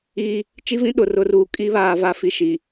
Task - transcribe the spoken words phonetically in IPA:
iː˦ | t͡ʃ i˦ v ĩ˦ ɗ ʊ˨ r ʊ˨˦ r uː˨ kʼ i˦ β aː˨ v a˦ f i˦ ʃ i˨

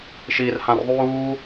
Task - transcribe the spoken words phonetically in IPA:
ʃ iː r h ã r ðˤ uː

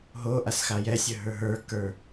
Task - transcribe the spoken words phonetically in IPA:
ɦ o ʔ a s x a j ɛ sʲ ə ɦ ə˞ ɦ ə˞ k ə˞

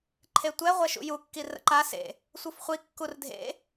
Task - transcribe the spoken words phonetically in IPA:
ǃʰ e tʷ ɛ ʁʷ ɛ ʃ ṵ j u kː i r ə̰ ǃ a s ḛ | sʷ ɯ f χʷ i kː u r dʱ ḛ

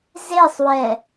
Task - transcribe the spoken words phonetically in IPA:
z e sˤ w ɛ

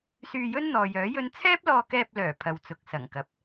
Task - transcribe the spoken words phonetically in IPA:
s yː˧ j ɵ˥ n n̪ ɔː˨ j œː˨˥ j ɵ˥ n t͡sʰ ɛː˥ p̚ l ɔː˧ k ɛː˧ p̚ l œː˨˩ pʰ ɐ˨ w t͡s ʊ˨ k̚ s ɐ˨˩ ŋ k ɐ˨˥ p̚

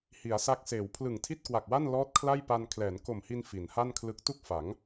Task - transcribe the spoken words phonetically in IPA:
h i˩˦ a̯ s a˦˥ k̚ s eː˩˦ w pʰ l ɯ˨˩ ŋ tʰ i˥˩ t̚ k w a˨˩ k̚ w a˥˩ n l ɔː˦˥ t̚ kʰ l a˥˩ j p a˧ n kʰ l ɛː˩˦ n k o˨˩ m h i˧ n f i˩˦ n h a˥˩ n kʰ l ɯ˦˥ k̚ t u˥˩ k̚ f a˩˦ ŋ

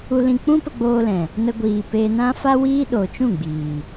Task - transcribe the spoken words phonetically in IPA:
u˧ l ĩ˧ k͡p ũ˦ p ə˧ ɡ͡b oː˧ l ɛ̃˨ | n ə˧ ɡʷ iː˨ p eː˧ n ã˦ f a˦ w iː˦ ɗ oː˨ t͡ʃ ũ˦˨ ɡ͡b iː˨

